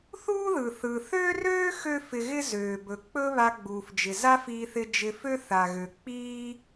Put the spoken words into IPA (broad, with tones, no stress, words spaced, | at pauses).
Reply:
θuː˥ðɯ˩ θɯ˩θø˥røː˥ xø˥fɪ˧ɣɪ˥ zøː˩bɵ˩ k͡pɵ˥βa˧ ɡ͡buː˩fd͡ʒɪ˩ za˥fiː˧θɪ˧ d͡ʒɪ˧fø˥θa˩ɣø˩ k͡piː˥